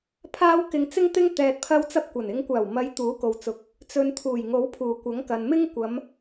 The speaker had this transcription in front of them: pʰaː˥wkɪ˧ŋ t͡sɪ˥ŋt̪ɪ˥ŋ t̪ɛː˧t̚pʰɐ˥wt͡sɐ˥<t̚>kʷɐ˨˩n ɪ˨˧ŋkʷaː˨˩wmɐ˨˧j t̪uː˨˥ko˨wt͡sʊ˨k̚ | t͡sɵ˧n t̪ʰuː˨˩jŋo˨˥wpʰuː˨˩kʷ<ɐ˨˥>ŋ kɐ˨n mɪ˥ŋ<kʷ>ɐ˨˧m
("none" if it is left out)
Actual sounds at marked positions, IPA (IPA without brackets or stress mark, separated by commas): p̚, ɐ˨˥, kʷ